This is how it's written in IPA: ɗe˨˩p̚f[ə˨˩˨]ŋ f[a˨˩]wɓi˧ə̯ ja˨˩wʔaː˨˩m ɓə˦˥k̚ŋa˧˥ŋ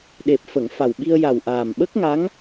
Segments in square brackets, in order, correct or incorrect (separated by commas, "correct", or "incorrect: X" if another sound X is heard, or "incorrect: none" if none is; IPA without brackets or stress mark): correct, correct